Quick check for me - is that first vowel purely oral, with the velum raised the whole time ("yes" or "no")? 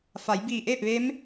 yes